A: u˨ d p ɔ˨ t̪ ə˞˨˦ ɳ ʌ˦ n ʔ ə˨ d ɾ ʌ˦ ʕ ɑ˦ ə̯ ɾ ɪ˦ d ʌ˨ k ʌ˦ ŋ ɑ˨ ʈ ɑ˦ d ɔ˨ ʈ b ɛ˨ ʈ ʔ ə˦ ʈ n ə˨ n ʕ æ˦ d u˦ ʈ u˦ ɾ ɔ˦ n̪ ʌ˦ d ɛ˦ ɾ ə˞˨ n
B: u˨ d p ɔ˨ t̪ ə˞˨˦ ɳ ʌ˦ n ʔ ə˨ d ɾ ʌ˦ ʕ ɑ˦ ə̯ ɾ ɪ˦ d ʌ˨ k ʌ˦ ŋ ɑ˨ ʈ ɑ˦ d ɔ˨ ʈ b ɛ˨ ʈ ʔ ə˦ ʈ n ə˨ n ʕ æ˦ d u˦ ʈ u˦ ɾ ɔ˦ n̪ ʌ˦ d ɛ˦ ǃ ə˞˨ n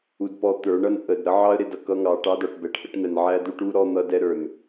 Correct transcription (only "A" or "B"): A